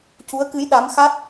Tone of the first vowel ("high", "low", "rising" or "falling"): rising